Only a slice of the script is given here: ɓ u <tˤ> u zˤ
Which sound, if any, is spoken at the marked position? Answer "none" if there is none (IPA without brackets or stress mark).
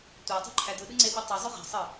tˤ